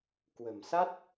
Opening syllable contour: low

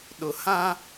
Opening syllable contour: low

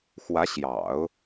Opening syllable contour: rising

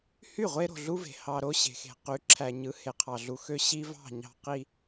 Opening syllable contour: falling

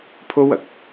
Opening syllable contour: high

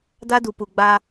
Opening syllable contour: high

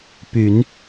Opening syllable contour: low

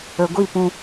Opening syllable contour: low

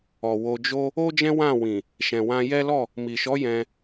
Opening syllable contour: low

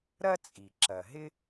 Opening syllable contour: high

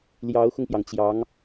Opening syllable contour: rising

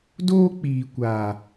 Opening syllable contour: high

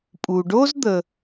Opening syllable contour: low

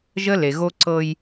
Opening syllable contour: high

